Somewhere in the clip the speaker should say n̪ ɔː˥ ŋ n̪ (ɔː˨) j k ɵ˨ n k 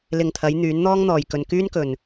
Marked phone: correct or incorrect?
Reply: correct